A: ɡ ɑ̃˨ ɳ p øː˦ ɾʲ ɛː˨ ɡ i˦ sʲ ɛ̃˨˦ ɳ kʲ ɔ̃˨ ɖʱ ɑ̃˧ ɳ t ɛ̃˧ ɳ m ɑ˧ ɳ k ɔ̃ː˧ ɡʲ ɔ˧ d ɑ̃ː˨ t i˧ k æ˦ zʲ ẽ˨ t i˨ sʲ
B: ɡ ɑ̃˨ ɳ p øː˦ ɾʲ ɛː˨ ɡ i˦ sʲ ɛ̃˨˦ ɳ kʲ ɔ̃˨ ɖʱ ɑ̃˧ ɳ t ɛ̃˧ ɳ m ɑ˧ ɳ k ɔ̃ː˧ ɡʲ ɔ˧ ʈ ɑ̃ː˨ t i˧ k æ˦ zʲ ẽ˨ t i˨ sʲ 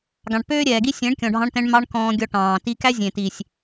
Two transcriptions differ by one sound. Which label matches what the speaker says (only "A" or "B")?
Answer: B